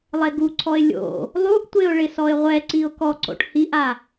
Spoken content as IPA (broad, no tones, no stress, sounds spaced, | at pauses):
lˠ e ɡ u ǀʰ ɔ ɪ̯ lʲ o̰ | lˠ u ʔ tʷ e ʊ̯ ɭ ɪ s ɔ ɪ̯ ʁʷ ɛ ǀ i ʊ̯ k ɔ ǀ o̰ ʈ h i ʔ a